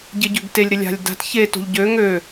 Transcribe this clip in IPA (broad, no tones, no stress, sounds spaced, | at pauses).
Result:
ɟ ɪ ɟ ø ɡ t e lʲ ɾ ɪ lʲ a̤ lʲ d a̤ t ç e t o̤ ʎ ɟ ø ŋ ø